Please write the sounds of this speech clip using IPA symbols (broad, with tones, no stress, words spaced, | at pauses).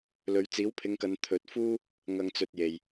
lɵ˨˧ɥ t͡siː˨˥wpʰɪ˨˧ŋkɐ˨˧n t̪ʰɵ˨˥t̚ fuː˥ | ŋɐ˨ŋt͡sɵ˨t̚ je˨j